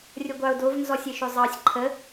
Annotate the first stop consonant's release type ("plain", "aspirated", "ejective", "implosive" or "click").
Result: plain